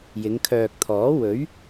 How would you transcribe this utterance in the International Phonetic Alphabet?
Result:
j ɪ˨˧ ŋ kʰ œː˨ k̚ t̪ʰ ɔː˨˥ w ɵ˨˥ ɥ

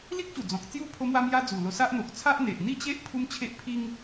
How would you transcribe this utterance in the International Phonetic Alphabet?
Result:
l i˦ k̚ ɕ u˨˩ d͡z ɔ̃˨ k̚ t͡s j u˥˧ pʰ o˦ m w a˦ m j a˦ d͡z u˨˩ l o˧ s a˦ ʔ n̪ o˨ k̚ t͡sʰ a˦ ʔ n̪ e˨ ʔ n̪ i˥˧ t͡ɕ e˦ ʔ pʰ u˦ m t͡ɕʰ e˦ ʔ pʰ i˦ ŋ

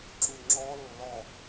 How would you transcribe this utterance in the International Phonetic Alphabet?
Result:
ǁ u ŋ͡ǁ ɔ lː ɔ

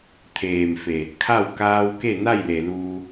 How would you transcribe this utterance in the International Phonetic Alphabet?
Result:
t̪ʰ eː˩ m f e˩ | kʰ a˥˨ w k aː˧ w k e˥˨ n a˥˨ j l e˩ l uː˧

